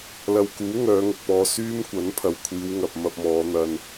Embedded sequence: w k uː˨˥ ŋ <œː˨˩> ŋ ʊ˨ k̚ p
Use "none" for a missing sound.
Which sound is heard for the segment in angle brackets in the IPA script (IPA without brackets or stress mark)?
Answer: œː˨˧